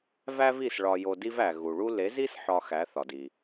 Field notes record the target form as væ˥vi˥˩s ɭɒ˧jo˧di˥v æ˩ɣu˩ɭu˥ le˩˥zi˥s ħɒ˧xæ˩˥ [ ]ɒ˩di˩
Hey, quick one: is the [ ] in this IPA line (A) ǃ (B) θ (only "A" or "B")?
B